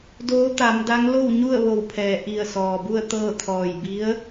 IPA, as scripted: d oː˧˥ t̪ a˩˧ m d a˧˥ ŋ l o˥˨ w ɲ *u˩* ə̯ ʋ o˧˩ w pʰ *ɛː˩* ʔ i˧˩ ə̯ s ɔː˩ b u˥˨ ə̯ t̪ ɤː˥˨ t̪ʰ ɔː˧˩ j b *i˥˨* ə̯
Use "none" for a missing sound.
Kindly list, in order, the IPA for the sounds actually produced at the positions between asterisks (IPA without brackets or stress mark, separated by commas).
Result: u˥˨, ɛː˩, i˧˥